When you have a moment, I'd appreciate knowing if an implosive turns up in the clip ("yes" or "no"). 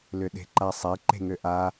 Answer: yes